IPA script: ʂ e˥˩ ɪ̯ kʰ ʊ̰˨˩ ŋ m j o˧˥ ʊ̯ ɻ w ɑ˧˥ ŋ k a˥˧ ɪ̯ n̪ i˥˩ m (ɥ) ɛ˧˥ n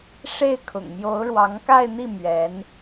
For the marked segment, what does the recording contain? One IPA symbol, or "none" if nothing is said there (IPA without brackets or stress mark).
ɥ